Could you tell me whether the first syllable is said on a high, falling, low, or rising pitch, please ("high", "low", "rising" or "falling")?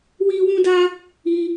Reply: high